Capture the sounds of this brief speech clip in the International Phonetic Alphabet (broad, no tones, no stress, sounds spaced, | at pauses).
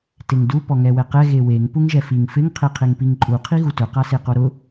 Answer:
t e ŋ d u p ɔ ŋ ɛ w ɛ q ɛ ɣ e w e ŋ p u ŋ ʒ ɛ f i ŋ f ɪ ŋ qʰ e qʰ e ŋ p i ŋ ǃʼ u qʰ i ɣ u t ʊ q a s e q o ɾ ʊ